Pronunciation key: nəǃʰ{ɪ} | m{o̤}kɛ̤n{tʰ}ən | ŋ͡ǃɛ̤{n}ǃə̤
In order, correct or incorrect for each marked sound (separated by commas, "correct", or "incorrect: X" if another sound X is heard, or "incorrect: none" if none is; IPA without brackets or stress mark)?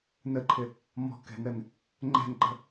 correct, incorrect: ɔ̤, incorrect: ɾ, correct